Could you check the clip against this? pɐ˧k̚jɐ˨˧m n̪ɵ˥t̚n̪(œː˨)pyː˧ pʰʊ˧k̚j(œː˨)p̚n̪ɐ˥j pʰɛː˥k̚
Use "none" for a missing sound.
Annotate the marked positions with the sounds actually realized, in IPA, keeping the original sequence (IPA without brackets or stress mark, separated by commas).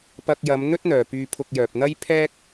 œː˨, œː˨